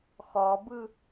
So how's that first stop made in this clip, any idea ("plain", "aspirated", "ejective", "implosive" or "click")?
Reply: plain